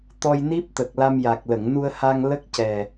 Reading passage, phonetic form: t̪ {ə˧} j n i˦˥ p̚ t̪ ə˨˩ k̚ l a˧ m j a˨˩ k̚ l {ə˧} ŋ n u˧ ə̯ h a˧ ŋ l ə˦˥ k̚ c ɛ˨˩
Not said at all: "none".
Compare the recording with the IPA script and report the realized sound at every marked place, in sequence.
ɔ˧, ə˨˩˨

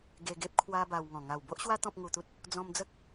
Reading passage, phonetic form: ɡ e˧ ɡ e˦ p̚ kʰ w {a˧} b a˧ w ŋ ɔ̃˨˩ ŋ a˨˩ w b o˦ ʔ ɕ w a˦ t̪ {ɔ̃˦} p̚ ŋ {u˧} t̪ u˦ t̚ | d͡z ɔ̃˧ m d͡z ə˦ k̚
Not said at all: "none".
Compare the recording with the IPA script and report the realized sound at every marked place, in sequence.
a˦, ɔ̃˦, u˧

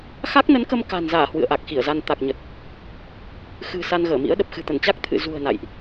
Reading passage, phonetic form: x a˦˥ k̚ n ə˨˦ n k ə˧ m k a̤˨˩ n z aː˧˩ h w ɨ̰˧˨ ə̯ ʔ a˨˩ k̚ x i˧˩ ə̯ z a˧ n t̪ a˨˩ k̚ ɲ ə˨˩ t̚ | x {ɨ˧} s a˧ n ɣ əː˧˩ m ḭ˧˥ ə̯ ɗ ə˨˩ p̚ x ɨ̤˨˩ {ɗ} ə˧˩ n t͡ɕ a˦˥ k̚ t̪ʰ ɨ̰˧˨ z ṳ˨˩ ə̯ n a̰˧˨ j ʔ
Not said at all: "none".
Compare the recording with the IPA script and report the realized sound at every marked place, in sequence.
ɨ̤˨˩, t̪

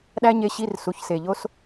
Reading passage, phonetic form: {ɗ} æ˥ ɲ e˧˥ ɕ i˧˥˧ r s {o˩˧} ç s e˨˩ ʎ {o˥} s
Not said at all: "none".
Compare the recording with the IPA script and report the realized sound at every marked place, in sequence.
ɗ, u˩˧, o˥

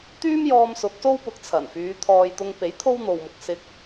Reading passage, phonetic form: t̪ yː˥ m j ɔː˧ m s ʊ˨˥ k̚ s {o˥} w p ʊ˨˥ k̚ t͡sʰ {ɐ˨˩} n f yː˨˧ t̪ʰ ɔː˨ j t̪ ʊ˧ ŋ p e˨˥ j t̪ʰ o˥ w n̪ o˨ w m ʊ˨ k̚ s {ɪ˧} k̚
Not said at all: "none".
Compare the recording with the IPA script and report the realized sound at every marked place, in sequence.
o˥, ɐ˨˩, ɪ˧

